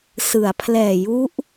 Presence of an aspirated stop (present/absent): present